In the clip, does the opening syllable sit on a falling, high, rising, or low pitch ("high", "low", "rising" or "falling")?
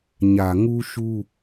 low